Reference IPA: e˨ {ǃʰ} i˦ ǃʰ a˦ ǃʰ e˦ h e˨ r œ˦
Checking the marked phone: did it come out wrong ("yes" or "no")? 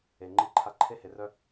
yes